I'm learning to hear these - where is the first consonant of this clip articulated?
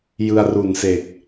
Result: palate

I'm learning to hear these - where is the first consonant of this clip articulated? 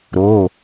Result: tongue tip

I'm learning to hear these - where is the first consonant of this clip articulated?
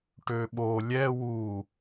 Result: retroflex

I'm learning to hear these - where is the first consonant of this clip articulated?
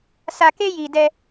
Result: tongue tip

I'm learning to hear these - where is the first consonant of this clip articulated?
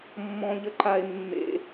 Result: lips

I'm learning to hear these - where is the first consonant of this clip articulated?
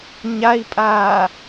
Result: palate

